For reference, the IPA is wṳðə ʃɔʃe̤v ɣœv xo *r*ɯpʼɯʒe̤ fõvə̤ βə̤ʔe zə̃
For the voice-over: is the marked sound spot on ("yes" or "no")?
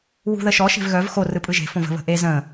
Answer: yes